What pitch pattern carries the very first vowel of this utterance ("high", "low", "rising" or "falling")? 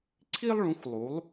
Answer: high